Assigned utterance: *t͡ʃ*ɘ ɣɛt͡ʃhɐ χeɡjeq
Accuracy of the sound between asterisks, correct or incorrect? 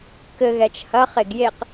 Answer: incorrect